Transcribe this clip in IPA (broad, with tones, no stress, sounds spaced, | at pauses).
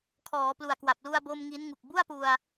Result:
kʰ ɔː˩˦ p l u˨˩ a̯ k w a˨˩ p̚ l u˧ a̯ b o˧ m ŋ i˦˥ n ŋ u˨˩ k̚ b u˥˩ a̯ p u˧ a̯